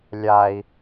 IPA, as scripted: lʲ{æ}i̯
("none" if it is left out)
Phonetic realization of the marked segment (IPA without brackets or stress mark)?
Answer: a